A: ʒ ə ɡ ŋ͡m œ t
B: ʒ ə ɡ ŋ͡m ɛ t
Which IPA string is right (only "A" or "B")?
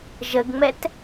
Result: B